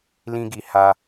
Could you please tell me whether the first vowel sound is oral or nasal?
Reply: nasal